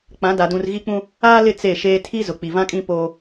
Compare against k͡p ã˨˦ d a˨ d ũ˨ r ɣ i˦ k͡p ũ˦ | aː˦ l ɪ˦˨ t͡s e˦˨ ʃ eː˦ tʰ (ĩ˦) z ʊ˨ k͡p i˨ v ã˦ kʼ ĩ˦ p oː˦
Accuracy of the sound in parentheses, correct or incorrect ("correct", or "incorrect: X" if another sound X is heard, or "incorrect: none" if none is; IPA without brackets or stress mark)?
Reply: incorrect: i˦